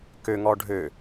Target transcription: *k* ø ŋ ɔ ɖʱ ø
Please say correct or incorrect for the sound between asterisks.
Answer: correct